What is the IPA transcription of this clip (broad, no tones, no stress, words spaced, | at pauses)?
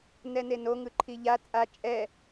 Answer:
nɛneno ŋɯǃʰiʎa t͡sʼa t͡ʃʼɛ